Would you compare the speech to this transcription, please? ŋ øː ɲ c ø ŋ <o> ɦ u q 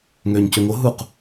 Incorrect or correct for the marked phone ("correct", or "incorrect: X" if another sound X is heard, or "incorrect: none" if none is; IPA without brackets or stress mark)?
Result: correct